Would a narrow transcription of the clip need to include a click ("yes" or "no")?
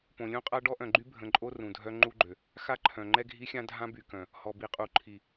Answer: yes